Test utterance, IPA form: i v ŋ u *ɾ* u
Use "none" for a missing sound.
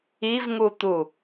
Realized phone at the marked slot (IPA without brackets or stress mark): t̪